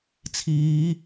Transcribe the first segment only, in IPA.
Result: t͡sʰ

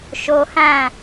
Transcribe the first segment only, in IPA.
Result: ʃ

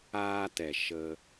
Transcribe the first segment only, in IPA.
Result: aː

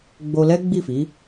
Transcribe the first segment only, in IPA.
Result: ɡ͡b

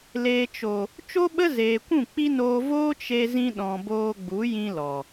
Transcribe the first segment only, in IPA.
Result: l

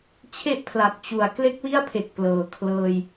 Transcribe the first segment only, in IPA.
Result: t͡ɕʰ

